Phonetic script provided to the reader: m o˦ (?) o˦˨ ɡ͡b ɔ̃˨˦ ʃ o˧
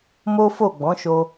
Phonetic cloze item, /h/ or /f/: f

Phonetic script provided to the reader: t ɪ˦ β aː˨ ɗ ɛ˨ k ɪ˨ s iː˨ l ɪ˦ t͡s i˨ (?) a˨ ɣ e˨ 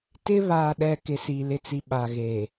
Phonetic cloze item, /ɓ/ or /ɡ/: ɓ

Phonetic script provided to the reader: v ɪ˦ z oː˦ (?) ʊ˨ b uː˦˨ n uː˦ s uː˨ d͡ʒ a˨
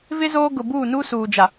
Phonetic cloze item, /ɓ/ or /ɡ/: ɡ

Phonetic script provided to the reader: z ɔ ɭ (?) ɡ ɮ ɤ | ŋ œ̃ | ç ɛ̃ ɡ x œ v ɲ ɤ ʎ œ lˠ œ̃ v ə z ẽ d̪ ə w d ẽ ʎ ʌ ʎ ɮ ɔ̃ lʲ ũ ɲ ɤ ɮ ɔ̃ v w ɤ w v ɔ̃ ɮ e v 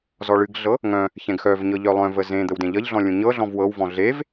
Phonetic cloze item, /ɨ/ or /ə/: ɨ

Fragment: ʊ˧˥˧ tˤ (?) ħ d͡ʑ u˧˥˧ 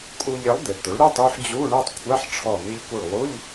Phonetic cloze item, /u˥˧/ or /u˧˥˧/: u˥˧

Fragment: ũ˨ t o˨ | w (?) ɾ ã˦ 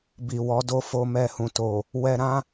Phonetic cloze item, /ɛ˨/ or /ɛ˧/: ɛ˧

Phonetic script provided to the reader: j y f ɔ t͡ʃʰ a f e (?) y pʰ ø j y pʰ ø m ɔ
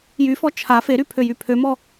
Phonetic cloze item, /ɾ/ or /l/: ɾ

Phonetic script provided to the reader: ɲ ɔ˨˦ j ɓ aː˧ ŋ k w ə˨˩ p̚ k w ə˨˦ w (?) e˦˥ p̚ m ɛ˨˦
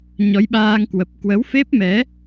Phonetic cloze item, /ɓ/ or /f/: f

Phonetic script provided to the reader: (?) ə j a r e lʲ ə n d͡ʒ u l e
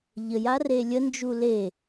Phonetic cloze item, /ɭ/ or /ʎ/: ʎ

